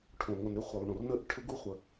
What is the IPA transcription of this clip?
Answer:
ʈʰ õ˩ ŋ o˩ n ɾ ʏ˦˥ χʷ e˩ lˠ ɳ õ˩ r n ə˦˥ ʔ ʈʰ ʏ˦˥ ɡ u˦˥ χʷ ə˩

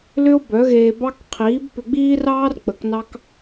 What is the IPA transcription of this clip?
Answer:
l ʏ˦ o̯ b œ˨˦ ɣ eː˧ b ɑ˦ k qʰ iː˨˦ b p ʏ˧ ɡ͡b iː˦ r ɑː˦ r k͡p ə˨˦ k n ɑ˦ k

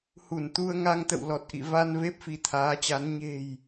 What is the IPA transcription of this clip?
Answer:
h u˧˩ n t̪ u˧ ə̯ ŋ a˧ ŋ t̪ ə̰˧˨ w l ɔ˨˩ t̚ ʔ ḭ˧˨ v a˧ n v e˦˥ p̚ f i˨˦ t̪ʰ aː˨˦ t͡ɕ a˨˦ n ɲ e̤˨˩ j

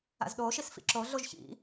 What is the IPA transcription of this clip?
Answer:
a̰ z ɗ oː ʃ i s f ḭ ǁ o ɮ o ʒ ç ḭ

